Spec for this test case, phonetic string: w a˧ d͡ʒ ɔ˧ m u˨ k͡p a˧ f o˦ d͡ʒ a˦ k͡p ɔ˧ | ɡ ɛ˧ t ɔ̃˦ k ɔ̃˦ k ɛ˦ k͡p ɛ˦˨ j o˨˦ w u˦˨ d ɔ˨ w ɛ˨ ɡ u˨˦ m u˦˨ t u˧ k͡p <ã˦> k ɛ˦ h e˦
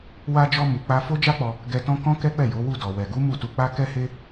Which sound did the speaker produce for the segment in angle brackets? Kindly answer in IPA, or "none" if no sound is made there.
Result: a˦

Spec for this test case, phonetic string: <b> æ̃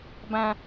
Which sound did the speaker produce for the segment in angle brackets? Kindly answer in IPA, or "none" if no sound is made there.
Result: b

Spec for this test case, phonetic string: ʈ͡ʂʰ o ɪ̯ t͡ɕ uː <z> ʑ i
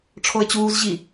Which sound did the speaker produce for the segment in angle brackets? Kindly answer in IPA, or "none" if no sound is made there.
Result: z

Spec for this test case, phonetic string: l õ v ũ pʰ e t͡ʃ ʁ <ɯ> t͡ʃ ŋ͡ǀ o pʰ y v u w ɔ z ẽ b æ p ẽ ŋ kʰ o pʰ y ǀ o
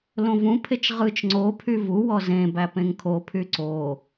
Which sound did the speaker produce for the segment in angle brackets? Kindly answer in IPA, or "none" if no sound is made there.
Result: ɯ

